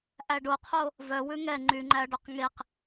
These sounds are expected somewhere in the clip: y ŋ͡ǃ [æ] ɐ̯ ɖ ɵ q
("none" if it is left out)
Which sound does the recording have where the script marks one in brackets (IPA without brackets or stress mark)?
æ